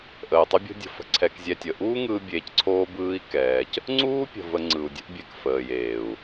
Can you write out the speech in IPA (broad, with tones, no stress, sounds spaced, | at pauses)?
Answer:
ʔ əː˨ tˤ o˦ bʲ o̤˦ dʲ ə̤˧ f ə̤˧ ǀʰ ɛ˧ k zʲ ɛ˧ tʲ ə˨ ʔ uː˦ ŋ ɯː˧ bʲ eː˧ c ǀʰ oː˦ b ɯː˦ i̯ k ɛː˧ c | ŋ͡ǀ uː˦ pʲ ə̤˨ v ə˨ ŋ͡ǀ ɯ˨ u̯ dʲ ə̤˦ ʔ bʲ ɛ˧ k f əː˨ j eː˨ u̯